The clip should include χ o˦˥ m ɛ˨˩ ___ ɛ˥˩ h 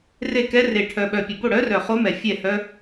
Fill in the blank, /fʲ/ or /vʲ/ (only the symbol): fʲ